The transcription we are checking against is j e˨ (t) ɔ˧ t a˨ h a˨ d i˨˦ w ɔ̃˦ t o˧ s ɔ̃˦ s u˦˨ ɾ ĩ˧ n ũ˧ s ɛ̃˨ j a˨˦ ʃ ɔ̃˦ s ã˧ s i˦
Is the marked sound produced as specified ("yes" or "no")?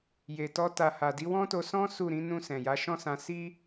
yes